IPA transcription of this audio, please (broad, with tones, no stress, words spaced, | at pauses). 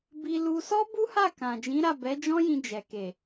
bi˧lu˧sɔ˦ bu˦ha˦˨ kã˨d͡ʒĩ˨˦ɾa˦˨ bɛ˨˦d͡ʒɔ̃˦jĩ˧ d͡ʒɛ˨ke˨